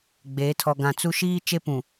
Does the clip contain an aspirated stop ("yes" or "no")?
yes